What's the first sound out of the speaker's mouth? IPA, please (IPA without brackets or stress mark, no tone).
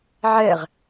ʕ